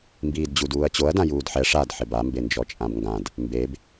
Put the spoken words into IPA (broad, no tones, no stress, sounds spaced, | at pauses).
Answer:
m b iː d d͡ʑ u d uː ɐ̯ t͡ɕ o ɐ̯ d ã j uː d ħ ɛ ʂ a d ħ ɪ b a m b e n d͡ʒ ɔ t͡ʃʼ ã b ŋ ɡ ã d | m b e b